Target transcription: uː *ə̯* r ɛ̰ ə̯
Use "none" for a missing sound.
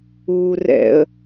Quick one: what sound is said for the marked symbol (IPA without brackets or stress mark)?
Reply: none